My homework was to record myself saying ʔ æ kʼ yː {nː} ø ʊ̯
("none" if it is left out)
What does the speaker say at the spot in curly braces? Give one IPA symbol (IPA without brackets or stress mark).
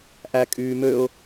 m